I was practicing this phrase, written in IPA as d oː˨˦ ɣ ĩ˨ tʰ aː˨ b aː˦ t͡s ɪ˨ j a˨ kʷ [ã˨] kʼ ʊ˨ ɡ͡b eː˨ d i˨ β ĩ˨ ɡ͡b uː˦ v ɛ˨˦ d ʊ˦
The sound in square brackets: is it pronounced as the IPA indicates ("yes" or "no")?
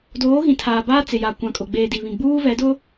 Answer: yes